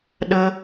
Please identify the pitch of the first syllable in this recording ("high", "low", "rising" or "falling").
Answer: high